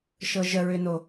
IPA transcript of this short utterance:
ʃɤʒəɹʏno

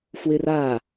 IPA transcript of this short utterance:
fwɪra

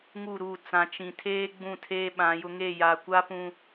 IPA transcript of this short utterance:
ŋu˦˨ɾuː˦˨ t͡sã˨t͡ʃĩ˨tʰeː˦ ɡ͡bũ˦˨tʰeː˦ɓã˨˦jʊ˦ ŋe˦˨ja˨kʷa˦pũ˨

